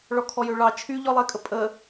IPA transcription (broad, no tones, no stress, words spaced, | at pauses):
ɭɔkʰɔjøɭɑ t͡ʃʰyʎɔlˠekʼə pʼə